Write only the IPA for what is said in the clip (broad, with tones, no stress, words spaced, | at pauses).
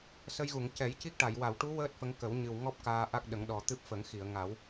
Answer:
sə˧jɣu˨˩˨ŋ cɛ˨˩˦jci˦˥k̚ʈa˨˩˨j wa˨˩˨wʈu˧˥ wəː˦˥t̚ fə˧˥ŋkə˨˩˦w ɲɨ˨˩w ŋɔ˦˥p̚ kaː˧ʔa˦˥k̚ɗə˨˩˦ŋ ɗɔ˨˩t̪ɨ˦˥p̚fə˨˩˦ŋxi˨˩˨ə̯ ŋa˨˩˦w